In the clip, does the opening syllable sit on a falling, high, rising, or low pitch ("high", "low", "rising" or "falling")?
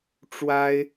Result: high